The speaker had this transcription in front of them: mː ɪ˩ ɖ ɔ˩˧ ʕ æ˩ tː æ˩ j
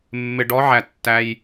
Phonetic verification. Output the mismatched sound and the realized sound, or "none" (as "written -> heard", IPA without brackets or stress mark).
none